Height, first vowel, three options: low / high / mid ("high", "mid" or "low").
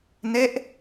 mid